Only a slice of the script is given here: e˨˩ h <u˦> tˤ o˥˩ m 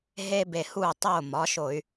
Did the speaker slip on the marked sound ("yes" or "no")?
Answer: yes